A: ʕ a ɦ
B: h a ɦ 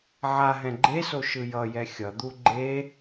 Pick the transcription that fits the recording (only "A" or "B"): A